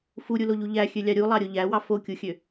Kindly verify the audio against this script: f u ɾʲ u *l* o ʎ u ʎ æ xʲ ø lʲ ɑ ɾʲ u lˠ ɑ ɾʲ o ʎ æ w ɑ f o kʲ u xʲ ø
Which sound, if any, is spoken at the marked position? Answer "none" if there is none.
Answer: l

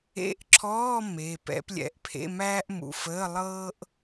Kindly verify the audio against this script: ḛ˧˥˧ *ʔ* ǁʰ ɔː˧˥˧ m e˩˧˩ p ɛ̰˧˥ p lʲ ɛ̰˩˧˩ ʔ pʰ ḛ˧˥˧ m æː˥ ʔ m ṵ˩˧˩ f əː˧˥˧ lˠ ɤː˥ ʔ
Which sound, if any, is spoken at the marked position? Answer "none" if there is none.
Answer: ʔ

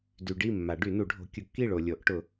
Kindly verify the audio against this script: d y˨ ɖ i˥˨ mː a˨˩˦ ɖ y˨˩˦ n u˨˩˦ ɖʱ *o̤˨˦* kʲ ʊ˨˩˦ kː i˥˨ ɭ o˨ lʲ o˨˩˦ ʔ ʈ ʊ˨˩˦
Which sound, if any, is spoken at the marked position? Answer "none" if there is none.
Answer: o̤˨˦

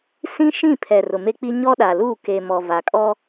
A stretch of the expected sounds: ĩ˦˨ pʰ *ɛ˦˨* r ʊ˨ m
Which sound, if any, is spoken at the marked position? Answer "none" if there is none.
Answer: ɛ˨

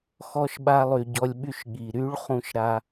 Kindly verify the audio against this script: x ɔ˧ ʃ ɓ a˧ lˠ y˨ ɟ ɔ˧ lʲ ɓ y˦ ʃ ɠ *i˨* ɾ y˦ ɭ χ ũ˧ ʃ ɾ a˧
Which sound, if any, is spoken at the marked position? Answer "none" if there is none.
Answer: i˨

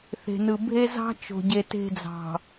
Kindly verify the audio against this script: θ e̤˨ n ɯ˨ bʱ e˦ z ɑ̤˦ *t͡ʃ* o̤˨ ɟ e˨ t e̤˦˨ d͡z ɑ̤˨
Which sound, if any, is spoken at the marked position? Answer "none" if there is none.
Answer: t͡ʃ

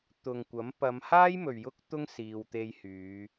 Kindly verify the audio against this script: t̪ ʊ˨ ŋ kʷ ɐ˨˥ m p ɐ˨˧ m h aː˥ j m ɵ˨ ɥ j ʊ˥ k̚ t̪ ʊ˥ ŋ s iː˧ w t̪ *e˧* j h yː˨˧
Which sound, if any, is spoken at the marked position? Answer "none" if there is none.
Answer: e˧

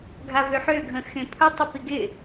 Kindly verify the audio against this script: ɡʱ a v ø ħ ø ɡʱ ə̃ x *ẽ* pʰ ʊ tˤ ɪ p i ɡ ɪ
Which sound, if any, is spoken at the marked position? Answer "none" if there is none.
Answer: ẽ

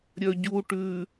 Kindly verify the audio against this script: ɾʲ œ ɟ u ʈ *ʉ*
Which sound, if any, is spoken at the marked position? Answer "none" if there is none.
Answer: ʉ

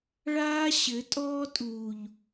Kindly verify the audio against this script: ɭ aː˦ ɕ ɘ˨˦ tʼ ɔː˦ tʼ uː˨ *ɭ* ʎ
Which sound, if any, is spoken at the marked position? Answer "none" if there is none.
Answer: none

